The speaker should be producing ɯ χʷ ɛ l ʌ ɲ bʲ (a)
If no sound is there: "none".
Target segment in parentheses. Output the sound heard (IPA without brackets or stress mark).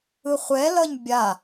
a